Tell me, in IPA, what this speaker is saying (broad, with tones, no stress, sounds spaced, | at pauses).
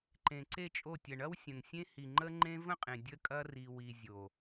ǃ ẽ˨ ǀ e˦˨ t͡ʃʼ o˦˨ tʲ ə˨ ɳ ɐ˦ w sʲ ə̃˨ ŋ sʲ ẽ˦ h i˨ ŋ͡ǃ ə˦ ŋ͡ǃ ẽ˦ v ə̃˦ qʼ ẽ˨ dʲ ə˦ kʼ ɐ˦ r i˨ w i˨ zʲ o˨